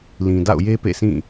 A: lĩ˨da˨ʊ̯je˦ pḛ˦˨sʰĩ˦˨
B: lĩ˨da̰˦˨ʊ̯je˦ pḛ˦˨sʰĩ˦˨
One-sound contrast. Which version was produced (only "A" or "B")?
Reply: B